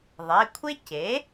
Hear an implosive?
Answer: no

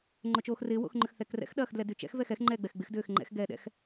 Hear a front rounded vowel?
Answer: yes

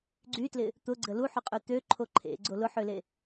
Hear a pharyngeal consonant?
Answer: yes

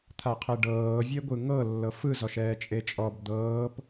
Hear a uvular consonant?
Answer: yes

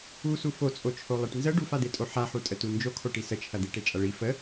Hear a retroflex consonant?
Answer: yes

